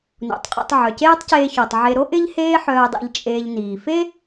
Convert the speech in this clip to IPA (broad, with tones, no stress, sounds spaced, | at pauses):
n o̰˩ tˤ qʼ o̰˧ tˤ ʕ œ˩ c eː˥ tˤ c eː˧ ç o˩ tˤ ʕ e˧ ɾ o˥ ʔ ɪ˥ ʎ h eː˥ ħ œː˧ dˤ ḭ˧ ʎ t͡ʃʼ eː˧ ʎ n iː˩ f e˥